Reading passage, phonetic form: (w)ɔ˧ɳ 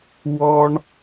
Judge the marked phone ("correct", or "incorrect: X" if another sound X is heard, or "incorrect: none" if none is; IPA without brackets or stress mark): correct